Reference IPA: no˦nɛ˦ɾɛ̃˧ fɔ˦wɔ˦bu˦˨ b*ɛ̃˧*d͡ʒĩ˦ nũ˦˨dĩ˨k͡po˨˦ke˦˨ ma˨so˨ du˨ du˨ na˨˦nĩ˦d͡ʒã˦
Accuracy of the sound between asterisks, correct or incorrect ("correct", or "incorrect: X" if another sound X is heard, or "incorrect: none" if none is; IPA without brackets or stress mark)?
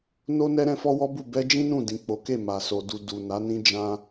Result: incorrect: ɛ˧